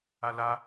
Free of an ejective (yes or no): yes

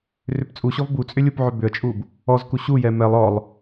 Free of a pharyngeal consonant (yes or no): no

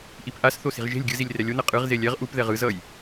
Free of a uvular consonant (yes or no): no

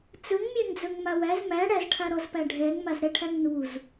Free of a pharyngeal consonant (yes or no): yes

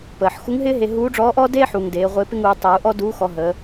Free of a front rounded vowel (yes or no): yes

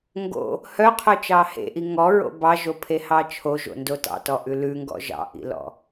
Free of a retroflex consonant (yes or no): yes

